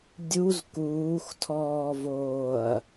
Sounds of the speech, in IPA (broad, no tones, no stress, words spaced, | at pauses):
dʲuz kuːxtʰɔːvoːɐ̯